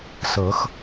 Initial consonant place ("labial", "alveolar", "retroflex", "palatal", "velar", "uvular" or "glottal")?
alveolar